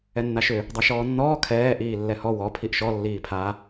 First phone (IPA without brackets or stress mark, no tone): ɛ